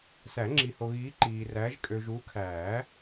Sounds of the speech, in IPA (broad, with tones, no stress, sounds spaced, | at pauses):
s æ˨˩˦ ŋ͡ǁ i˨ h o˨ ɣ iː˨˦ ǃ iː˨ r æ˨˦ ʒ kʼ ø˨ ʒ u˨˦ kʰ æː˨˩˦